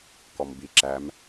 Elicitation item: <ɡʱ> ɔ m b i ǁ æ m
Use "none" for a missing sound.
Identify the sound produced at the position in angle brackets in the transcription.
k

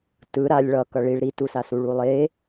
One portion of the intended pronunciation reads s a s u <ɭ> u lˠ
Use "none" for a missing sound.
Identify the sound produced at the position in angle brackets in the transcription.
ɭ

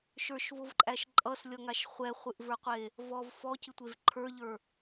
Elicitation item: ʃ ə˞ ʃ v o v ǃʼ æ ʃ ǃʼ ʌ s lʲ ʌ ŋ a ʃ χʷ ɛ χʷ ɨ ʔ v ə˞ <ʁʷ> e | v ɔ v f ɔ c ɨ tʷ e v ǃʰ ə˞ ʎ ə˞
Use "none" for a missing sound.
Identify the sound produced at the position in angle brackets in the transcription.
qʷ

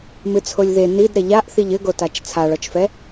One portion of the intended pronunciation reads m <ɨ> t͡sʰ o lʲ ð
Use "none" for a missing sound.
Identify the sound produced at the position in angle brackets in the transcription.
ɨ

